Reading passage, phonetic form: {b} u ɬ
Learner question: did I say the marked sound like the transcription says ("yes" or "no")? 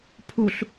no